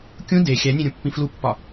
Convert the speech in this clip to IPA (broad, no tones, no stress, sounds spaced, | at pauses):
kʲ ũ d e xʲ æ nʲ ẽ ɾʲ ũ pː ĩ f l u pː ɒ